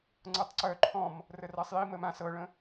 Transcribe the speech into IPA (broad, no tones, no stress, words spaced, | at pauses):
ŋ͡ǀɤtˤǀœ ǃʰɔ̃m | rərasˤji məmã sɤɭə̃